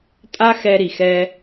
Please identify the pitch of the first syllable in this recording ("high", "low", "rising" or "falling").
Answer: high